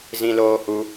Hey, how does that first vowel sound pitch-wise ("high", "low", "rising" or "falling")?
high